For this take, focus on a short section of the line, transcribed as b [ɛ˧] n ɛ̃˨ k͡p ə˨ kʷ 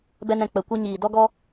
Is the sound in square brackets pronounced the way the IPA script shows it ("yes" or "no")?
yes